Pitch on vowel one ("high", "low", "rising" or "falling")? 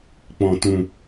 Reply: low